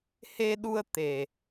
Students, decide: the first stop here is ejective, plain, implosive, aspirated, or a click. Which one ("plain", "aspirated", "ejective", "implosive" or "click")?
implosive